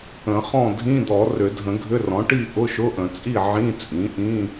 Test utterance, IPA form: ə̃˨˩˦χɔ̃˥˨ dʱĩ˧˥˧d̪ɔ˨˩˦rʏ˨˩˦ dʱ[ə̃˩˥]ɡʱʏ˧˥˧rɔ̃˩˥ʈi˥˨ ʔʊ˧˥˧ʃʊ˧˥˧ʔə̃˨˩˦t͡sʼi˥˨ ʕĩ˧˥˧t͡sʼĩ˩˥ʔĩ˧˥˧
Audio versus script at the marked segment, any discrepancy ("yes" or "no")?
yes